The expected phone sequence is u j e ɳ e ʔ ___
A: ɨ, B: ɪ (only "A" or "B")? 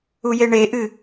A